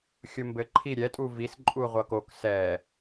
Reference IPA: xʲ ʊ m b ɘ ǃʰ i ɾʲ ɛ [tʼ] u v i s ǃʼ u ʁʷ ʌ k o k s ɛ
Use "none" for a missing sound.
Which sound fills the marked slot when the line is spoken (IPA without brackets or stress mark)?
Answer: tʼ